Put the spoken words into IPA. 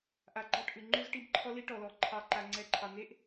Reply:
ʔ a˨ ɡ͡ǃ ɑ˦˨ ʈ ʔ ʉ˨ ŋ͡ǃ ʉ˦ z ʈ i˦ b ǃʰ ɔ˦ l i˦ ʈ ɔ˨ l ɔ˨˦ ǃʰ ɑ˨ ǃ a˨ ŋ͡ǀ ɛ˨˦ ǃʰ ɑ˨ n̪ e˦ ʔ

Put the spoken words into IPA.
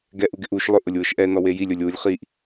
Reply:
ɡ ɛ ʔ u ɡ ɪ ʔ u ʃ lˠ ʊ ʔ ʊ lʲ w ʊ ʃ ʔ ɛ n ɔ w e j i lʲ o lʲ w u lʲ χ i ʔ

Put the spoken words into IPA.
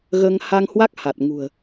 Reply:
ɣ əː˧ ŋ h a˧ ŋ h w a˦˥ k̚ h a˨˩ t̚ ŋ ṳ˨˩ ə̯

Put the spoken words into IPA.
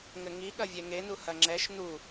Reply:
ŋ ɘ ŋ i ɠ ɐ vʲ ɛ ŋ e n u h ɐ ŋ͡ǁ ɛ ʃ n u

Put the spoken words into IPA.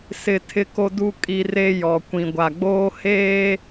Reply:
s ɪ˦ tʰ ɪ˦ k o˦ d u˦ kʼ i˦ r e˦ j ɔ˨ kʷ ĩ˨ ɡʷ a˨ ɡ͡b oː˦ h eː˦

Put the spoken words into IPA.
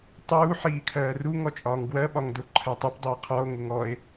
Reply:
tˤ uː ħ iː kʰ ɜː r u ŋ ɔ t͡ʃʼ ɒː ŋ ɡ w ɜ ɓ ɒ ŋ d ʊ ǃʰ ɜ tˤ u p dˤ i e̯ qʰ ɔ o̯ ŋ ʊ ŋ ɔ e̯

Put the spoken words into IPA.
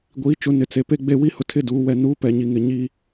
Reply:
ɡʷ iː˨˦ t͡ʃ ʊ˨˦ n ɪ˨ t͡s e˨ p e˦ ɡ͡b e˦˨ w i˦ h ʊ˦ tʰ ɪ˦ d uː˨˦ w ɛ˨ n uː˨˦ p ɛ˨ ɲ i˨ ŋ ɪ˨ ɲ i˦

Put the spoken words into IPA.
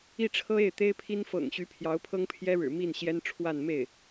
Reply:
i˥˩ ʈ͡ʂʰ ɤ˥ e˥˩ ɪ̯ t̪ e˥ ɪ̯ pʰ i˥ n f ɤ̰˨˩ ŋ ɕ y˧˥ pʰ j ɑ˧˥ ʊ̯ pʰ ɤ˥ ŋ pʰ j ɛ˥ ɻ ɻ̩˨˩ m i˥˩ n ɕ j ɛ˥ n ʈ͡ʂʰ w a˥˧ n m e˥˩ ɪ̯

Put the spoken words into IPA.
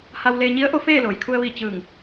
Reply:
h a˧ w l eː˧ ɲ i˧˥ ə̯ ʔ o˧˥ f eː˥˨ l oː˩ j kʰ u˧ ə̯ ʋ i˧˩ t͡ɕ ɯː˧˩ ŋ

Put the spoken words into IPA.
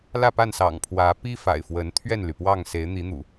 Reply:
l ä˥˨ p a˥˨ n s ɑ̰˨˩ ŋ pʰ w ä˨˦ p i˦ f a̰˨˩ ɪ̯ f w ə˨˦ n t̪ʰ ɥ ɛ˥˨ n l y˩ p w ɑ˥˨ ŋ s e˨˦ ɪ̯ n̪ i˨˦ n̪ ṵ˨˩

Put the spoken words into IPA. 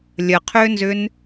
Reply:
lʲ ə qʰ ʏː n z ʏ n

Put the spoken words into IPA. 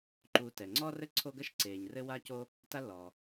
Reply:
ǃ uː˨ t ɛ˩ ŋ͡ǀ ɔː˥ r ɘ˥ ǀʰ o˦ ɡ ɐ˥ ʃ ǀ eː˩ ɲ r ɘ˦ w a˦ c o˦ | t a˦ lː ɔː˩

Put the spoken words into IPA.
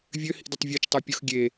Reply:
vʲ ø h ḭ d ɪ tˤ vʲ ø t͡ʃ tˤ ɛ pʲ ʊ x ɡʲ e

